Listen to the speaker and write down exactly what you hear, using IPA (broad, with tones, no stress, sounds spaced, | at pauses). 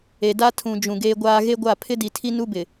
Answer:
e˨ d a˦ tʰ ũ˨ d͡ʒ ũ˨ ɡ eː˦ ɡʷ aː˦ ɣ e˦ ɡʷ a˦˨ pʰ ɪ˦ d i˨ tʰ i˦ n u˦ b ɪ˨